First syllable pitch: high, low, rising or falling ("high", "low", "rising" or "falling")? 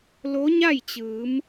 rising